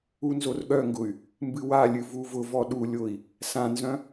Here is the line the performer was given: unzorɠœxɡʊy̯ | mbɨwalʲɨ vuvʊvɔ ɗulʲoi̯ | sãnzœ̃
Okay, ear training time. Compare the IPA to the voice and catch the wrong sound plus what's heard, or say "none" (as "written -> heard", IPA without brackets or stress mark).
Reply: x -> ŋ